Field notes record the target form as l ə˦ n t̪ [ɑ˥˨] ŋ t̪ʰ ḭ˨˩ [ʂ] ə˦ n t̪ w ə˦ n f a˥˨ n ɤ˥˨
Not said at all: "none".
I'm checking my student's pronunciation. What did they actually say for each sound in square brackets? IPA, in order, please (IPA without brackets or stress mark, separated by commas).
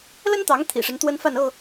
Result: ɑ˨˦, ʂ